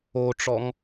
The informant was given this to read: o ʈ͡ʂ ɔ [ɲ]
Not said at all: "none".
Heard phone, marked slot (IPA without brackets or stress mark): ŋ